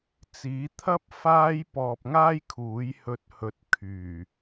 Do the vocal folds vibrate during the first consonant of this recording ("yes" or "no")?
no